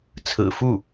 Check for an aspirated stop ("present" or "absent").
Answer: present